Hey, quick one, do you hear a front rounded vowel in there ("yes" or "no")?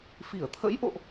no